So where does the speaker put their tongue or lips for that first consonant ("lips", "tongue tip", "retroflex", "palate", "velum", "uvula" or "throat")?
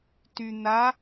tongue tip